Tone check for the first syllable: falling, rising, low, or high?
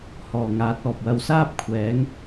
low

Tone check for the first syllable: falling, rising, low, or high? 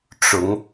rising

